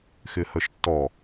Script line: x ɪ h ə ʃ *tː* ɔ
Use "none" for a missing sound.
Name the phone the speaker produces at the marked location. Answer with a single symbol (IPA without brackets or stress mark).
tː